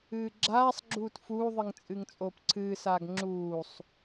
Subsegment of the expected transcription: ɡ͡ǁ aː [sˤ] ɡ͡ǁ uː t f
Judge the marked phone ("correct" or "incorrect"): correct